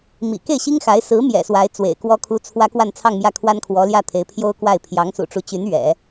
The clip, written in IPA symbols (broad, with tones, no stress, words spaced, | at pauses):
mḭ˨˩ ke˥˩ɪ̯ɕi˥ŋxa˧˥ɪ̯ sɹ̩˧˥ mjɛ̰˨˩swa˧˥ɪ̯ t͡swḛ˨˩ɪ̯kwɔ˥kʰu˥ t͡sʰwä˥ kwa˥˧nt͡sʰɑ˥˧ŋmjä˥˩ kʰwa˥nkʰwɔ˧˥ljä˥˩t̪ʰe˧˥ɪ̯ pʰjo˥ʊ̯kwa˥˩ɪ̯ pʰjɑ˧˥ŋsṵ˨˩ʈ͡ʂu˧˥t͡ɕy˧˥n ɥɛ̰˨˩˦